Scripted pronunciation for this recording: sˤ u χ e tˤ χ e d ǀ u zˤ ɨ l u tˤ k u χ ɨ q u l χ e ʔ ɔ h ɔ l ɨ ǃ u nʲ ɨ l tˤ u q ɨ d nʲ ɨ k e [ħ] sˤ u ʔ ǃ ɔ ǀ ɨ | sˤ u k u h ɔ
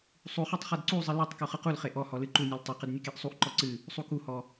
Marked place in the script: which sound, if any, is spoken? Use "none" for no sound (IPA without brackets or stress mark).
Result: ʔ